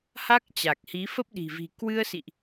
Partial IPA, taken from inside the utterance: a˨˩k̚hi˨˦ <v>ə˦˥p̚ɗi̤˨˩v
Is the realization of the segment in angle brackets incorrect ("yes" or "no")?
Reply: yes